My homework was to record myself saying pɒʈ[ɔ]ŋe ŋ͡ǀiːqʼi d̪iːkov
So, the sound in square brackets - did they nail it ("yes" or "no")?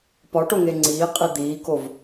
no